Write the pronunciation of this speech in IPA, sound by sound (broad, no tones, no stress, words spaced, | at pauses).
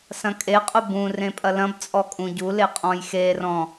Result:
sɐ̃kʼeqʼʊ bũrẽ pʼɐlɐ̃bt͡sʼɔ kʼũɟule qʼɔ̃jxerɔ̃